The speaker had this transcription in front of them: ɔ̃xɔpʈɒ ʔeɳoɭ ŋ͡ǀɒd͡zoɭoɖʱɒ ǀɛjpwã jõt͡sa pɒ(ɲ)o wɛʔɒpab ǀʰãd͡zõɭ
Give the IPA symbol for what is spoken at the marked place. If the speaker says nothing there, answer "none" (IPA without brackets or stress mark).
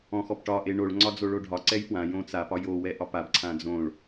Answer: j